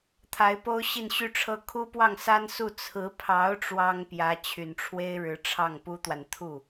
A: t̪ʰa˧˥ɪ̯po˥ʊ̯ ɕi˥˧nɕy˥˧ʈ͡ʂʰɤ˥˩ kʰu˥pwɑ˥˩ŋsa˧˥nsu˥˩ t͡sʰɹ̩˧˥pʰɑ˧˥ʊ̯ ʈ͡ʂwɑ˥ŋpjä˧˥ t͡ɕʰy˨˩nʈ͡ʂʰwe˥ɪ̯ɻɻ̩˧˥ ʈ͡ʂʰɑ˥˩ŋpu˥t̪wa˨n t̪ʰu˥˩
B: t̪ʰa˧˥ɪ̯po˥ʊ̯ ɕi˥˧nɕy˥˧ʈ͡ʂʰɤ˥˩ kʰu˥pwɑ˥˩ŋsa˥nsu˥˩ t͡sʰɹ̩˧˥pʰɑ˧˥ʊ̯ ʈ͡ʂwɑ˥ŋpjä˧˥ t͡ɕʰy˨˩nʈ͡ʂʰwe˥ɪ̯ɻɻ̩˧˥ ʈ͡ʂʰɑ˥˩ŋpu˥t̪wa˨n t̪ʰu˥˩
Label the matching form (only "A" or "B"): B